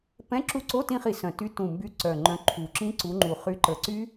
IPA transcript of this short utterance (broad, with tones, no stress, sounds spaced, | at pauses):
p ɛ̃˧˥˧ ǁ u˦˨ ǀ o˧˥˧ t ĩ˦˨ χ i˧˩˧ s œ̃˨˩ t y˨˦ t ũ˨˩ m b y˨˦ ǀ œ˨˩ ŋ͡ǃ œ̃˨˦ ǃʰ u˨˩ ǁ ĩ˦˥ ǀ u˨˦ ŋ͡ǃ u˨˩ χ y˨˦ ǃ ə˨˩ ǀ y˦˥